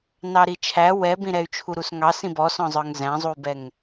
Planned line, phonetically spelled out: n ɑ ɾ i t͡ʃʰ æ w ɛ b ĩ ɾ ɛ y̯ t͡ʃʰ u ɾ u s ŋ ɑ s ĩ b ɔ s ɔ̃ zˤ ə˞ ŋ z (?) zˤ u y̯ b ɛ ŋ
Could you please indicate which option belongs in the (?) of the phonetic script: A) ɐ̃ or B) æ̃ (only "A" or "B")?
B